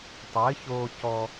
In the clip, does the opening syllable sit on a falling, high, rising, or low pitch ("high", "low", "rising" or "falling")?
rising